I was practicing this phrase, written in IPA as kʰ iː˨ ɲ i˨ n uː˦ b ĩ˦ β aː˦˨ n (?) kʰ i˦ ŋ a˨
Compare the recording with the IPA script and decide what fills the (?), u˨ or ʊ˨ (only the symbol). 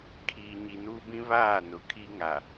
ʊ˨